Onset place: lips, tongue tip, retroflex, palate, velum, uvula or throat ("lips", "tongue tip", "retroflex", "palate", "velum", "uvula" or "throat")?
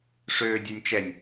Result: retroflex